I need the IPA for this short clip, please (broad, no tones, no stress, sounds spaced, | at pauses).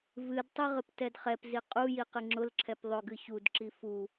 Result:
v ɨ d tˤ i ʁ ɨ p t ɛ d χ ɛ p z i qʼ u j i q ɨ ŋ͡ǁ ʊ l ǁʰ ɛ p ðˤ ʊ ɡ ɨ ç u d ǁ i f u